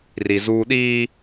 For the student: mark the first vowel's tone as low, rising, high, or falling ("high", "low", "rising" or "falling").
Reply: low